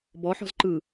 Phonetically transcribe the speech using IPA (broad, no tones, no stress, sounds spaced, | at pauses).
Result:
b ɔ ħ ɔ̤ z ǃ ɯ